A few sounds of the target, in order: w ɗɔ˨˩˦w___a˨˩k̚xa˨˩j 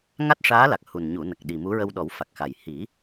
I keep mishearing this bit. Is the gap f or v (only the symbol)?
f